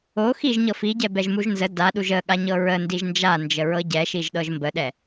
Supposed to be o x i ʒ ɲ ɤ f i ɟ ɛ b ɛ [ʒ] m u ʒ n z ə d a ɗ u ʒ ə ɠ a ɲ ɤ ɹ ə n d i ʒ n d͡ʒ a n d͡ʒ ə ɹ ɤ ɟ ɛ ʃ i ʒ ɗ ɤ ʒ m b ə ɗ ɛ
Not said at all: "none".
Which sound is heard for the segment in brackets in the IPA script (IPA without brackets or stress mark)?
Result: ʒ